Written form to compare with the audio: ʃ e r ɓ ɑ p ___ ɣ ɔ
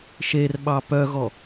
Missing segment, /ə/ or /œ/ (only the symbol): œ